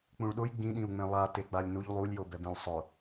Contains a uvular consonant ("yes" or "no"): no